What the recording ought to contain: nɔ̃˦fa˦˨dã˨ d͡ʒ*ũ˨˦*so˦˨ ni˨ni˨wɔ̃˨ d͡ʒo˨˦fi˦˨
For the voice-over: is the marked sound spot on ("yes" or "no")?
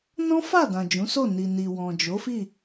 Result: yes